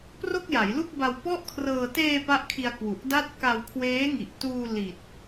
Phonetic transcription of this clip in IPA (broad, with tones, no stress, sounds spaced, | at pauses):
p r o˥˩ k̚ j a˩˦ j l u˥˩ k̚ b a˧ w p ɔ˥˩ ʔ kʰ r ɤː˧ t eː˧ p a˥˩ ʔ kʰ i˧ a̯ k w u˨˩ ʔ d a˥˩ t̚ k a˧ w kʰ w eː˦˥ ŋ i˨˩ ʔ t uː˧ l i˨˩ t̚